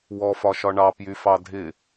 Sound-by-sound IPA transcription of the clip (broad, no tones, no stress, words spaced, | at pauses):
wɔfɒʃɒ ɳɑpjyfɑ dʱɪ